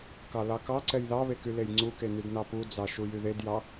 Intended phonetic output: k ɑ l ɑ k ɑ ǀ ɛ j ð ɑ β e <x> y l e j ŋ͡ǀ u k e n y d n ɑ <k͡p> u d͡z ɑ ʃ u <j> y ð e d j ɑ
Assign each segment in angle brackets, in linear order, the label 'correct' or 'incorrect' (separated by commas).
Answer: incorrect, incorrect, correct